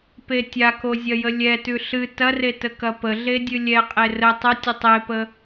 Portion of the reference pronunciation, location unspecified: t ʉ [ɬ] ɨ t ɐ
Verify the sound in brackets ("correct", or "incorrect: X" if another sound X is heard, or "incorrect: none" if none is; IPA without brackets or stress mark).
correct